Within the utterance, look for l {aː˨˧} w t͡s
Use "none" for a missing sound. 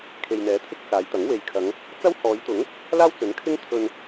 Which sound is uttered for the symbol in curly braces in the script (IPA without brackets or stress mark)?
aː˥